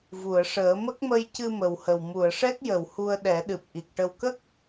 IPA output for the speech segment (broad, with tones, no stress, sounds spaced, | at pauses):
v u˨˩˨ ə̯ ʂ əː˨˩˦ m ə˦˥ k̚ m ə˧ j c ɨ˧ m ə˨˩ w h ə˨˩ w m u˨˩˨ ə̯ ʂ ɛ˦˥ k̚ j ə˨˩˨ w h u˧ ə̯ ɗ ɛ˨˩˦ ɗ ɨ˨˩ p̚ ʔ i˨˩ k̚ ʈ ə˧ w k ə˦˥ k̚